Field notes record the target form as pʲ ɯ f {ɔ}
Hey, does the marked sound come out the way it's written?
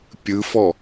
yes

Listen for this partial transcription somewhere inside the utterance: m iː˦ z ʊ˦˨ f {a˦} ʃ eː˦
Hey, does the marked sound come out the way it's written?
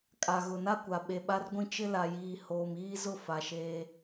no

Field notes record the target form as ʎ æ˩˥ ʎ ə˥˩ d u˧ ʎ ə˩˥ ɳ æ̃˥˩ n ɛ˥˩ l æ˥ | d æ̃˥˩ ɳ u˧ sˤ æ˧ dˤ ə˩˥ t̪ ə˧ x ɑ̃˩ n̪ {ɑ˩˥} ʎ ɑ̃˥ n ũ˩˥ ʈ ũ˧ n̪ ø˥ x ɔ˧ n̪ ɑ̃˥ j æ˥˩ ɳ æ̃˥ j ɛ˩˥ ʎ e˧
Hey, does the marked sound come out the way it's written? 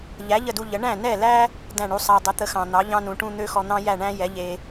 yes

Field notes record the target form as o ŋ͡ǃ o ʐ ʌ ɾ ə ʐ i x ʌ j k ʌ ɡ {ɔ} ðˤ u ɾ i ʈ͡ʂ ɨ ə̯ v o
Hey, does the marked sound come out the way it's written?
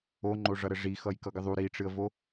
no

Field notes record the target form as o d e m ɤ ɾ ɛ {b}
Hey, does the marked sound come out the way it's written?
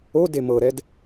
no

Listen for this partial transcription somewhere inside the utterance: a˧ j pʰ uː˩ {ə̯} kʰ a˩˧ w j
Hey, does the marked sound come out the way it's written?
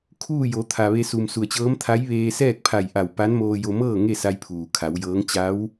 no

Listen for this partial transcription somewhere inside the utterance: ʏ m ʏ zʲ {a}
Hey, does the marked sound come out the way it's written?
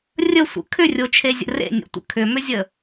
no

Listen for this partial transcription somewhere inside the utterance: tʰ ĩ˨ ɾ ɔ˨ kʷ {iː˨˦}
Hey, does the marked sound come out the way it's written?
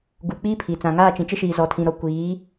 yes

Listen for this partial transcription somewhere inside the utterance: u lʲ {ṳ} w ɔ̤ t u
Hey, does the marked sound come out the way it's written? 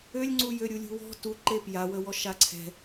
yes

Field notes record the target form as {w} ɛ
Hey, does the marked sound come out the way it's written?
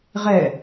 no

